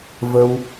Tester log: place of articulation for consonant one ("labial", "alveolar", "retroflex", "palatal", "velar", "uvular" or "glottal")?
labial